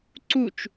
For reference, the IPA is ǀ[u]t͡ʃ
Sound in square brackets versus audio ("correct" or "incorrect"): correct